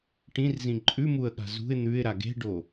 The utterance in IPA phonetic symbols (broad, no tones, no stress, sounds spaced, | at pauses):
ʈ ĩ r z ĩ ǃʼ ʉ m u ə̯ ɠ a̤ z ṳ ɪ̯ n̪ ʉ ɪ̯ ɾ a ɡ e̤ ɖ o